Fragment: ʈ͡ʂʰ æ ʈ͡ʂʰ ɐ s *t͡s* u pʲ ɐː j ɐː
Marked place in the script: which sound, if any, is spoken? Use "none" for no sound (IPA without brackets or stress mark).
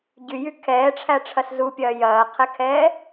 z